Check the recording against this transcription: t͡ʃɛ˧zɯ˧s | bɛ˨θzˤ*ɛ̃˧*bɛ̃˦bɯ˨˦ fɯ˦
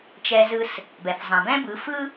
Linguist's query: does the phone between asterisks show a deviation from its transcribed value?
yes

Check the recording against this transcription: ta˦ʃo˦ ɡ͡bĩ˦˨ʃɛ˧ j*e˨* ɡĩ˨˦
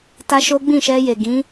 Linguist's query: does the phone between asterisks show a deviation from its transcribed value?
no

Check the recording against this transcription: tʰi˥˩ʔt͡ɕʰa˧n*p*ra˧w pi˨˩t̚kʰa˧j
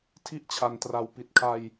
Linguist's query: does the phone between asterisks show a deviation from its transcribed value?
yes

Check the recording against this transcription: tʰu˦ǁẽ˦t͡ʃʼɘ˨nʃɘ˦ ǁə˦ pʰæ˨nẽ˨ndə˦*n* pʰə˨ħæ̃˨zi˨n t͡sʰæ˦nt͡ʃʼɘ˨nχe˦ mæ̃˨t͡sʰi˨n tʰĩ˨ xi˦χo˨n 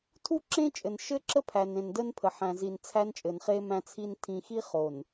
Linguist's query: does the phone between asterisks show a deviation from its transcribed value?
no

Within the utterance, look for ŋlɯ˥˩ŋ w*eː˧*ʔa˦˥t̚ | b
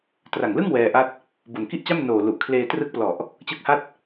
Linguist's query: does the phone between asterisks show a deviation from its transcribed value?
yes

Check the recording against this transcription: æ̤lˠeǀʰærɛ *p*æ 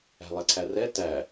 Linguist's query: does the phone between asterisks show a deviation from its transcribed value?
yes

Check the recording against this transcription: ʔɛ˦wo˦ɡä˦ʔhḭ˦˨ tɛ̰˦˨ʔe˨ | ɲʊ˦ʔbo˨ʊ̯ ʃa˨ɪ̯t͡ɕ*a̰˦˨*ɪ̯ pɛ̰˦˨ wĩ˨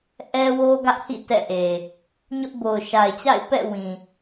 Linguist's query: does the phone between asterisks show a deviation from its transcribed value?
no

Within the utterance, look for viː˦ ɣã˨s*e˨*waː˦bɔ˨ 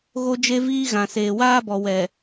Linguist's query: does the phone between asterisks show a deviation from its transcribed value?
yes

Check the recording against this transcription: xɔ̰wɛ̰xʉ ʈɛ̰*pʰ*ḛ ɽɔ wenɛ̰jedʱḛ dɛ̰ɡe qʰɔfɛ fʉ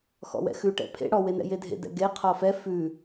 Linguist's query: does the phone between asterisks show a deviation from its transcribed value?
no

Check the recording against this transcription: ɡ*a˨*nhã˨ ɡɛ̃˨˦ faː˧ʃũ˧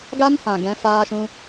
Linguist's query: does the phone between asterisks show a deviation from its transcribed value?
yes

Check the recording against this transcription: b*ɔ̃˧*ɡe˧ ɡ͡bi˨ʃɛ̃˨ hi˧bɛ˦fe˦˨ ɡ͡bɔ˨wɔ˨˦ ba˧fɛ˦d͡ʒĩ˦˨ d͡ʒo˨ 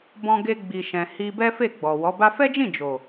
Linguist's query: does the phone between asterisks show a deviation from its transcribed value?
no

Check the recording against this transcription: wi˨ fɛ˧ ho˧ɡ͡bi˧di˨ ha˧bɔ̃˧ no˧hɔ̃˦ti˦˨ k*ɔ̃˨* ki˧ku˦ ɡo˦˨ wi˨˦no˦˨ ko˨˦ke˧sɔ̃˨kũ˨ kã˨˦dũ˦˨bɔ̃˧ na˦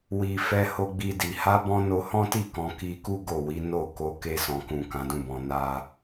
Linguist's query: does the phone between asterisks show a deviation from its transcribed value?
yes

